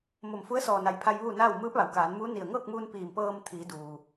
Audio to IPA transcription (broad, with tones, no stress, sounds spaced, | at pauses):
m o˧˩ m f u˧˥ ə̯ s ɔː˧˩ n a˩˧ j pʰ a˧ j ʋ uː˥˨ n aː˥˨ w m ɯː˧˥ p̚ ʋ a˩ w k aː˩˧ n m uː˧˥ n i˧˩ ə̯ ŋ ɤː˥˨ k̚ m uː˧ n p iː˧˩ m p ɤː˧ m t̪ʰ iː˩˧ d uː˩